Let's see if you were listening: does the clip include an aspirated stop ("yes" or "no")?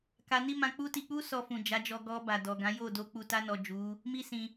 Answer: no